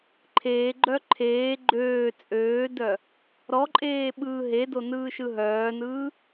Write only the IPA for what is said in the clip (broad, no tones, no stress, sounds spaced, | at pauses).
ǃʰ eː ɡ͡ǃ œ ǃʰ eː ɡ͡ǃ øː t͡sʼ øː d œ | ɾ ɔ ǃʼ eː ɓ ɯː ɦ e d o n ɯː ʃ ɯ ɦ œː n ɯː